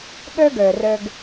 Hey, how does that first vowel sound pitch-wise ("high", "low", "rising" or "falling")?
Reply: high